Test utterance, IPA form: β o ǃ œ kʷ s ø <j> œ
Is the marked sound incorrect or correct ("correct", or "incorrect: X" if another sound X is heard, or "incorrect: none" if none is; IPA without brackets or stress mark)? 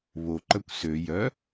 correct